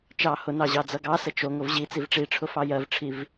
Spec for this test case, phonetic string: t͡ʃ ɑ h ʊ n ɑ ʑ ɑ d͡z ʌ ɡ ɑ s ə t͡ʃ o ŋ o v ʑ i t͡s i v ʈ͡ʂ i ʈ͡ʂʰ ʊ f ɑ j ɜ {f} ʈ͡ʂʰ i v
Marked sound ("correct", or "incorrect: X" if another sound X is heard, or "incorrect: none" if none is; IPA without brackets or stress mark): incorrect: v